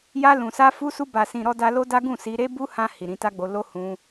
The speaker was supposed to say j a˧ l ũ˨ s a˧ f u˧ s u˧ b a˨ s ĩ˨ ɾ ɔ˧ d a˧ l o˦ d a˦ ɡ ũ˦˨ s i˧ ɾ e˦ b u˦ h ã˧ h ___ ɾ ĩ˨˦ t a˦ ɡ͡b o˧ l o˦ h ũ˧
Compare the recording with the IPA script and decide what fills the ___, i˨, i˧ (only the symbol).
i˨